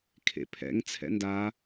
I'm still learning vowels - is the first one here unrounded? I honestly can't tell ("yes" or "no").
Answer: yes